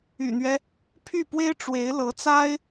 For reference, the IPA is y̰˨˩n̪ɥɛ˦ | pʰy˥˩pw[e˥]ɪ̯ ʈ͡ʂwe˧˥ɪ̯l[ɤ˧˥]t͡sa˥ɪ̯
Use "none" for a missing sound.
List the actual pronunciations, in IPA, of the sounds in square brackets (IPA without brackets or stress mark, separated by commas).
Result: e˥, ɤ˧˥